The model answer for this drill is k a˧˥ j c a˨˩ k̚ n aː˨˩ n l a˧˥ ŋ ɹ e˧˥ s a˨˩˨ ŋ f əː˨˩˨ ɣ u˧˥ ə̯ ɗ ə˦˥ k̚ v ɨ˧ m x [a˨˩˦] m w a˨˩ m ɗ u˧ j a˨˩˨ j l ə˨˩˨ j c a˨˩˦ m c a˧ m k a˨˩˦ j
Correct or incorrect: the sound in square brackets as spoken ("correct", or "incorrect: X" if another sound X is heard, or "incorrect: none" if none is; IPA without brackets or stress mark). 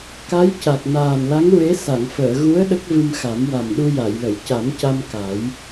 correct